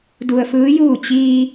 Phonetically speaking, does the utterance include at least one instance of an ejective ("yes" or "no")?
no